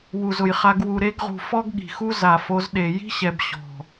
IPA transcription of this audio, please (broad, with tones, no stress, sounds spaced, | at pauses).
w u˨ z ʊ˨ j χ a˧ ɡ w u˨ ɾ e˧ ɡ ʁ ṳ˨ f ɔ˦ ɡ ɠ i̤˨ x u˦ z a˨ f o˧ z ɗ e˨ j i̤˦ ɕ ɛ˨ b ɕ ɔ̤˨